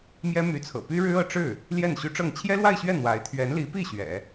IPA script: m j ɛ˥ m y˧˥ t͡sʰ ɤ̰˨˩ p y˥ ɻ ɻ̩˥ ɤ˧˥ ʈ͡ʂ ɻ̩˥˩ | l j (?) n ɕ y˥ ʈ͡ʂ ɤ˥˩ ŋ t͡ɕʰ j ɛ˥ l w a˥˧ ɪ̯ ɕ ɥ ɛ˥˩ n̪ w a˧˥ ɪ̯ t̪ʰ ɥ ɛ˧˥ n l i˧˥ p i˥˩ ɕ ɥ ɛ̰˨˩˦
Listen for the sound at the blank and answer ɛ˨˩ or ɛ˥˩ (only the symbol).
ɛ˥˩